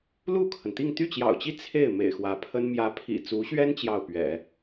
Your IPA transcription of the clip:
l u˥˩ kʰ ə˩ n t̪ i˥˧ ŋ t̪ y˥˩ t͡ɕ j ɑ̰˨˩ ʊ̯ t͡ɕ i˥˧ t͡sʰ e˥˩ ɪ̯ m ḛ˨˩ ɪ̯ x w ä˧˥ pʰ ə˥ n m j ä˧˥ pʰ ḭ˨˩ t͡s u˧˥ ɕ ɥ ɛ˥ n t͡ɕ j ɑ˥˩ ʊ̯ p ɥ ɛ̰˨˩˦

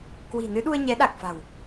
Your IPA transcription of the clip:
k w i̤˨˩ n ɨ˨˦ ɗ u˧ ə̯ ɲ ɛ˨˦ ɗ a˨˩ k̚ f a̤˨˩ w

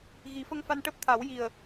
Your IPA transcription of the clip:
ɣ i˨˩˦ f ə˧ ŋ f a˧ n ʈ əː˦˥ p̚ t̪ʰ a˨˩˦ w j i˨˩ ə̯

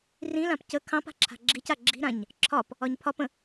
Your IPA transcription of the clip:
r ĩ l ã p c ə kʰ ɑ̃ p a̤ ǁʰ a̤ ɡ͡ǁ i c a ɡ͡ǁ i̤ ɾ ã ɲ | ǁʰ ɒ p | ɒ ɲ pʰ ɒ p ə̃

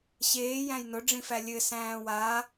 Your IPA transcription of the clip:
ɕ eː j æ̃ j n ʊ ɖ͡ʐ ĩ f æ lʲ ɘ s æ̃ː w a

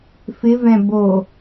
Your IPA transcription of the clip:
f ɪ v ɛ̃ b o

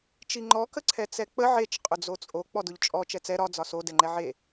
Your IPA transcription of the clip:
t͡ʃ i ŋ͡ǃ ɔ k ə ǀʰ ɛ t͡s ɛ k͡p ə ʕ e t͡ʃ qʼ ʊ d͡z o t͡sʼ o k͡p ɔ d ʊ ʎ t͡ʃʼ ɔ t͡ʃ ɛ t͡s ɛ ɾ ɒ d͡z ɒ s o d ɛ ŋ͡ǃ ɛ ʕ e

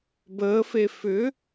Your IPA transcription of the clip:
b əː f e f ʏ

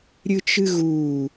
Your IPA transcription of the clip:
ɾʲ ɨ t͡ʃ ɨ ɣ uː

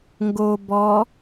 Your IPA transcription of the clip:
ŋ ɡ o b ɔ

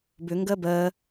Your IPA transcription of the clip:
b ʏ ŋ ɡ ɜ b ɜː

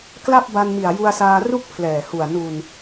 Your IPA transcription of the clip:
k l a˥˩ p̚ b a˧ n m i˨˩ a̯ j u˧ a̯ s aː˧ r u˥˩ k̚ pʰ l ɛː˨˩ h u˨˩ a̯ n u˨˩ n

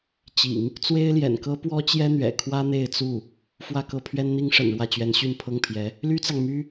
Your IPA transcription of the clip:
t͡ɕ ḭ˨˩˦ ŋ | t͡s w e˥ ɪ̯ l j ɛ̰˨˩ n k ɤ˥ p w ɔ˥ t͡ɕ j ɛ˥ n̪ ɥ ɛ̰˨˩ kʰ w ä˥ n̪ e˥˧ ɪ̯ t͡s u˥˩ | f w ä˥˧ k ɤ˥˩ pʰ ɥ ɛ˥ n n̪ i˥ ŋ ʂ ə̰˨˩ n ɻ w ä˥˩ t͡ɕ ɥ ɛ˧˥ n ɕ y˥˧ n pʰ ɤ˥˩ ŋ pʰ j ɛ˧˥ | l y˥ t͡s ɑ˨ ŋ m y˥

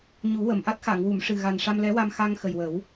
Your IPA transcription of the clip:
ɲ u˨˩˦ w ə˨˩˨ m ʔ a˦˥ t̚ x a˨˩˨ ŋ w u˨˩˨ m ʂ ɨ˨˩ ɣ a˨˩ n ʂ a˧ m l ɛ˧˥ w a˧ m x a˧ ŋ x ə˨˩ j w ə˨˩˦ w

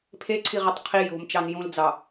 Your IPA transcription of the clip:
pʰ e ǀʰ i ʁ i tˤ qʰ i j o̤ m t͡ʃ ɑ n j ũ l d͡z ɑ

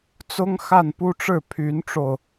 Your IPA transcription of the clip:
t͡s ʊ˥ ŋ x a˥˩ n p u˥ ʈ͡ʂ ɻ̩˥˩ pʰ y˧˥ n ʈ͡ʂ o˧ ʊ̯

